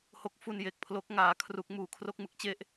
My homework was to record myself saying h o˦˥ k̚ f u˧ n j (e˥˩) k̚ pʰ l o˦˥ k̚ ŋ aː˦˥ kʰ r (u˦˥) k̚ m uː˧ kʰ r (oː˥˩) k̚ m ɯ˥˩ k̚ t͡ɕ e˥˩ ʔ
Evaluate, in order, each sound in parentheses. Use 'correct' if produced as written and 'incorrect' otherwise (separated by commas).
incorrect, correct, incorrect